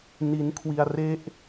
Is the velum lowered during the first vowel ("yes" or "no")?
no